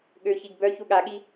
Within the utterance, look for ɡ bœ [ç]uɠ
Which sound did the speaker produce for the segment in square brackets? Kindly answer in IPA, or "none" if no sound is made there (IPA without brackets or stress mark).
ç